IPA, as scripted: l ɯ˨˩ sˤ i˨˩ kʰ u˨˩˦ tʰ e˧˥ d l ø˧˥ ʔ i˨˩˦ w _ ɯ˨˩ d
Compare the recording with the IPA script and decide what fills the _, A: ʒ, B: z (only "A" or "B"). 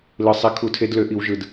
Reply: A